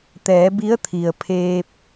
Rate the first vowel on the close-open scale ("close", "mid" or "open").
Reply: mid